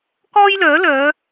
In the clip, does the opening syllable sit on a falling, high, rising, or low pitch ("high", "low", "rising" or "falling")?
high